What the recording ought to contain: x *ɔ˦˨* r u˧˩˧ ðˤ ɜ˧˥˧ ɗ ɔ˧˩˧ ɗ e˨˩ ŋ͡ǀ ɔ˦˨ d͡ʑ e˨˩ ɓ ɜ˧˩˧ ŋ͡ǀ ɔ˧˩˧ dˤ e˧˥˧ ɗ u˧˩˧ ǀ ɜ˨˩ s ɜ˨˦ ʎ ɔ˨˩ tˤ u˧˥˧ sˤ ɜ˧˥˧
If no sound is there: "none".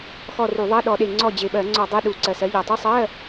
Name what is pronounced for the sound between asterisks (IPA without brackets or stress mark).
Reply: ɔ˦˨